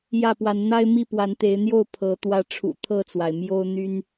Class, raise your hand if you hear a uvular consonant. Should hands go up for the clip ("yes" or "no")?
no